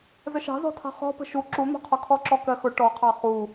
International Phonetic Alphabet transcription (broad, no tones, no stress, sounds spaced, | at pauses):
z ə ʃ ɑ̤ z ɔ̤ tʰ ɑ̤ χ ɔ̤ p ə̤ ʃ u ǁ u n̪ ɔ̤ qʰ ɔ kʰ ɔ ǁ ɔ k ɜ x ʊ ʈ ɔ qʰ ɑ χ u